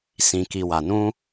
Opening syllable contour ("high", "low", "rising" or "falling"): low